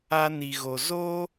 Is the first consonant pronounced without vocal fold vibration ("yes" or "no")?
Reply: no